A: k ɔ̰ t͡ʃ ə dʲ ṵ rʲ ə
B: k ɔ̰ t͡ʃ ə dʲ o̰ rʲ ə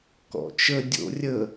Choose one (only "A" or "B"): B